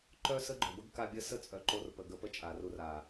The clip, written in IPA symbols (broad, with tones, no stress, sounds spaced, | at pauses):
ǃ œ˦ s ə˦ ɡ͡ǃ œ˨ b ə˦ ɡ k a˦ bʲ ə˦ s ə˦ t͡sʼ œ˨ ǃ o˧ r p ə˨ ɡ ə˧ p ə˦ t͡ʃʼ a˨ r u˧ r a˨